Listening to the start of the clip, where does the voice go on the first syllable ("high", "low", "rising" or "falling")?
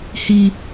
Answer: high